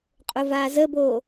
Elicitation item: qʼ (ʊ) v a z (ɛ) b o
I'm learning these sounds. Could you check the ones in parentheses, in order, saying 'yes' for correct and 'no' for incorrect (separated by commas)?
yes, no